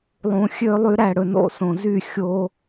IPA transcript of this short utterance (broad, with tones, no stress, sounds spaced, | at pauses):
lˠ ũ˧ xʲ ø˧ lˠ y˧ ɾ æ˦˨ ɽ ɵ˧ n o̰˦˨ s õ˨ z y˦˨ xʲ o˧